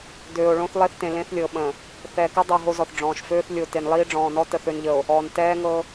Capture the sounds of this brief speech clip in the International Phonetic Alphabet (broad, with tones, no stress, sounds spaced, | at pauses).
d øː˨ o̯ ɭ õ˦ θ lˠ e˦ θ t ẽ˨ l ẽ˦ θ lʲ ɤ˨ ɓ ə̃˨ | θ ɛ˨ k ɤ˦ dˤ ɤ˨ ɦ o˦ z ɔ˨ θ ɖ͡ʐ ɔ̃ː˨ ʃ f øː˦ θ lʲ o˨ t e˨ n lˠ iː˦ ɖ͡ʐ ɔ̃ː˨ n ɔ˦ t ə˨ θ ø˨ n ʎ ə˨ o̯ | ɔː˨ n t ɛː˦ ŋ ɤ˦